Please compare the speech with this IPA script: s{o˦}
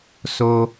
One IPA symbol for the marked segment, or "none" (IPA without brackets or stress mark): o˦